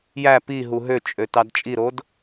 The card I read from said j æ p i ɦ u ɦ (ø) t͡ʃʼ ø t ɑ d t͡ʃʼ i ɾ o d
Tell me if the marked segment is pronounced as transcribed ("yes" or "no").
yes